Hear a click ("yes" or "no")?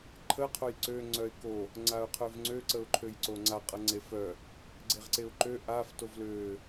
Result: yes